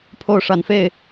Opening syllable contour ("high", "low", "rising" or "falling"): falling